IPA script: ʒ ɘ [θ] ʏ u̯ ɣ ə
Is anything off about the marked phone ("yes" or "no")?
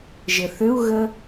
no